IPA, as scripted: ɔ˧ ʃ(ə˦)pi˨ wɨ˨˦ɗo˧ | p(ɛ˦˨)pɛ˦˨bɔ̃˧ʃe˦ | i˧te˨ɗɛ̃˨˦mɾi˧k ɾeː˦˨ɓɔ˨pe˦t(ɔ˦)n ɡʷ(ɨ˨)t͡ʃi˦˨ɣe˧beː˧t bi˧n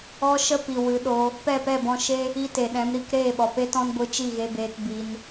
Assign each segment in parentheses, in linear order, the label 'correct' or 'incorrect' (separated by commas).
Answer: correct, correct, incorrect, incorrect